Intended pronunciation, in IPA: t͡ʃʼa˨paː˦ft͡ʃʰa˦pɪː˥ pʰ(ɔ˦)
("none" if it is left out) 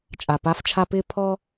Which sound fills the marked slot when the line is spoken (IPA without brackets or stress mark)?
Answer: ɔ˦